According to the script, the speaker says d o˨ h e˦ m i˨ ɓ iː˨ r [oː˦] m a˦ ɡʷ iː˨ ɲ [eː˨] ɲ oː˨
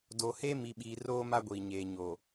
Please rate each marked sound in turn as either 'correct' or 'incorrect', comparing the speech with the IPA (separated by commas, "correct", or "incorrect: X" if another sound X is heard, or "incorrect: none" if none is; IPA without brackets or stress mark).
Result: correct, correct